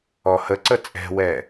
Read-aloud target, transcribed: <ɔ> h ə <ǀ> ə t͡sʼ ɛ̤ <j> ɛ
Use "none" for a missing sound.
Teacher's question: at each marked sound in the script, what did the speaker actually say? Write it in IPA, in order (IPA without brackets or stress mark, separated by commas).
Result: ɔ, ǀ, w